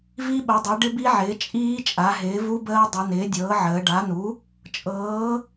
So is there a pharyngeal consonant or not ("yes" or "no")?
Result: yes